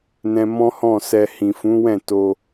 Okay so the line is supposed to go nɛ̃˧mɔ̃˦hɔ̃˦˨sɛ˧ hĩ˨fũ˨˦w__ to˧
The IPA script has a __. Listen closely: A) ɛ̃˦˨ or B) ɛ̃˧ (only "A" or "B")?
A